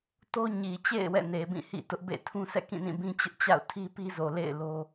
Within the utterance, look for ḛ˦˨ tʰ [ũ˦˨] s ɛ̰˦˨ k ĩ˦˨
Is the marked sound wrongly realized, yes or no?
yes